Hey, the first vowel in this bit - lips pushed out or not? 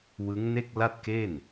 no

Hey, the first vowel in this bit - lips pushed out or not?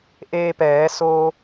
no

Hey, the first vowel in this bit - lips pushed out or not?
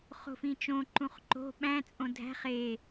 yes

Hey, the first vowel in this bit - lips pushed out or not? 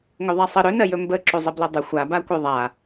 yes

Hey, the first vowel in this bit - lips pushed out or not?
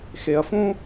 no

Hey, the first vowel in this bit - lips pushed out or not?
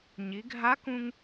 no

